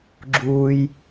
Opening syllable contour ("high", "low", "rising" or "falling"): low